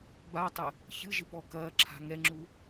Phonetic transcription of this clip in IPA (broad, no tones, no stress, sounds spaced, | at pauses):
b a tˤ ɘ | ç ɨ ʒ ɨ p ɔ k ɐː ǁʰ a̤ ŋ ɛ ŋ͡ǁ u